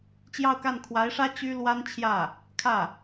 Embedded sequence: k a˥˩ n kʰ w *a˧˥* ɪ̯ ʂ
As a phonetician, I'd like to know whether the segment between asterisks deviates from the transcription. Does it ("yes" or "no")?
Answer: no